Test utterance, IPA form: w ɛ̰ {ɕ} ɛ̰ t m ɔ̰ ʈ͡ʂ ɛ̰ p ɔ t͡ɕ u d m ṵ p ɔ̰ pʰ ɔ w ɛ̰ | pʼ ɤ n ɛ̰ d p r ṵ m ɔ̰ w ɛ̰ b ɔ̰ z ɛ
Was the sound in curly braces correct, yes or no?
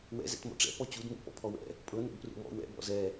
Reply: no